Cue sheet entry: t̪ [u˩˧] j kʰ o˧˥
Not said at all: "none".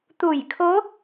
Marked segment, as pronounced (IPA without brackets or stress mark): u˧˩